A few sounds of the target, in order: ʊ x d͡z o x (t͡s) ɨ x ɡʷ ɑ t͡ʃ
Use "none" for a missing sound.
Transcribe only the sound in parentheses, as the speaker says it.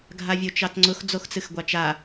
t͡s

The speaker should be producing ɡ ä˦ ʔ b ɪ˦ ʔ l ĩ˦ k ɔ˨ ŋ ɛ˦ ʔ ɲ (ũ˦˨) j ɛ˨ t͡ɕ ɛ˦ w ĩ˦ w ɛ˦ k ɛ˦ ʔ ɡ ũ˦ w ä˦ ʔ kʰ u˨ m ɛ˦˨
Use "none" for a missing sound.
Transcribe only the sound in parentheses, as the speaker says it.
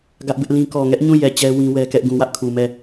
ũ˦˨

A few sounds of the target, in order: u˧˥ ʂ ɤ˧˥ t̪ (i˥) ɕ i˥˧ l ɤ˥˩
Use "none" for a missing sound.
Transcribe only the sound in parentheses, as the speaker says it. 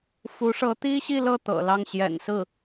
i˥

